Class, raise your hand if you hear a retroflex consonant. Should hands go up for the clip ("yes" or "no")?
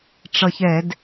yes